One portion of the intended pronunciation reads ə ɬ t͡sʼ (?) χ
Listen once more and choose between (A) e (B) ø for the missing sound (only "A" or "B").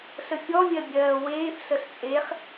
A